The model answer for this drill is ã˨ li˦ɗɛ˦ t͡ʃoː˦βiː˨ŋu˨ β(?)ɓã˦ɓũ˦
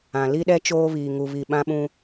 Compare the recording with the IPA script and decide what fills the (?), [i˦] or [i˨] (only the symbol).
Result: i˨